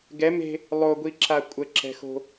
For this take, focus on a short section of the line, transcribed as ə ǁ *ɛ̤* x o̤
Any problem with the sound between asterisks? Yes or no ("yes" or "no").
no